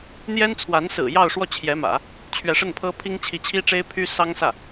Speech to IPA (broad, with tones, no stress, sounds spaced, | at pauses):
n̪ j ɛ˥ n t͡sʰ w a˧˥ n s ɹ̩˨˩ j ɑ˥˧ ʊ̯ ʂ w ɔ˥˩ t͡ɕʰ j ɛ˧˥ m ä̰˨˩˦ | t͡ɕʰ ɥ ɛ˧˥ ʂ ə˥˩ n pʰ ɤ˥ pʰ i˥ ŋ t͡ɕʰ i˧˥ t͡ɕʰ i˥ ʈ͡ʂ e˥ ɪ̯ pʰ y˥ s ɑ˥ ŋ s ä˥˩